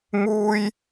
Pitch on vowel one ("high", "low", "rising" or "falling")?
high